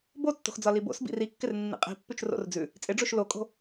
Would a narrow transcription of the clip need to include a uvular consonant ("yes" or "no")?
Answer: yes